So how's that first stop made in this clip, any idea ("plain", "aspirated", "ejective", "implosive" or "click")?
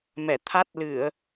aspirated